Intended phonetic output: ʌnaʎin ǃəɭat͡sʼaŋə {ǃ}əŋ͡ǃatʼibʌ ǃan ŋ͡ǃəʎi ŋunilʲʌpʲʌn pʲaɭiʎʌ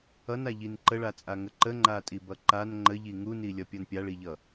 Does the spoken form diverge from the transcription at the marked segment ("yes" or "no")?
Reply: no